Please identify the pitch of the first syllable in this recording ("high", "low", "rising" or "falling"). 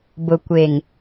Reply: low